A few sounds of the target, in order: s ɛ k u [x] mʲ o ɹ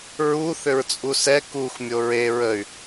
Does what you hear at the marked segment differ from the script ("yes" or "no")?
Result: no